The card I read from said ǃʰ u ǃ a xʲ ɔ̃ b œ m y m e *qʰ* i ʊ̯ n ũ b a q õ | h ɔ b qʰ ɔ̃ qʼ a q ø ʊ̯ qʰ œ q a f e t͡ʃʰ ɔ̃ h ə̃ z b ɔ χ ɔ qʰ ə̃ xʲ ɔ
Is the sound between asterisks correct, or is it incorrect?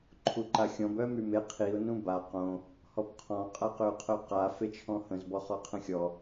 correct